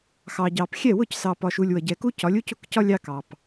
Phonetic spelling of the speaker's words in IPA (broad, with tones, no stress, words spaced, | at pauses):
xɑ˨ɟɑ˨p xʲɛ˦˨wʊ˦˨c sɑ˨pɒ˨ʃu˨lʲ wʌ˨ɟɛ˨ku˦cɒ˨˦lʲ u˦cʊ˦˨kcɒ˦ lʲɑ˦kɑ˨p